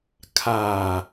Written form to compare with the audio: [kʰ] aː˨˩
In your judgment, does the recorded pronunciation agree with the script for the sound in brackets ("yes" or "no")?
yes